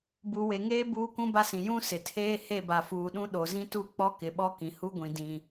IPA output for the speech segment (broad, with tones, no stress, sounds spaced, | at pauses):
b u˨ w e˨ ŋ eː˦ b uː˦ k ũ˦ b a˦ s ĩ˨ j ũ˦ s ɪ˨ tʰ eː˦ h e˦˨ b a˨ f uː˨ ɗ ũ˦ ɗ o˨ z ĩ˦ t u˦ k͡p ɔ˦ k ɪ˨ ɓ ɔ˦ k ĩ˨ h u˦ ɡʷ ĩ˨ d ĩ˨